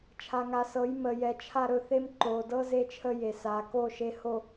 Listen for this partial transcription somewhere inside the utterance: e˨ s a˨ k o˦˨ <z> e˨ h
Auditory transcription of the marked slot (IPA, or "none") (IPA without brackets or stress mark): ʃ